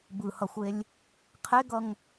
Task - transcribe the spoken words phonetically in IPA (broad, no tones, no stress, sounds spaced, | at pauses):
b ɯ h ʌ xʷ e lʲ | qʰ e ɡ ʌ ŋ